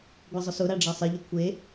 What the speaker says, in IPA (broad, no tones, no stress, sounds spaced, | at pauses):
ɡʷ a zˤ ʊ s ʊ ɾ a ɖ͡ʐ a sˤ e ʎ ʊ kʷʰ e